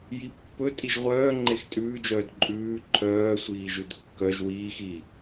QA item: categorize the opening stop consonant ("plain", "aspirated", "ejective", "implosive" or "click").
plain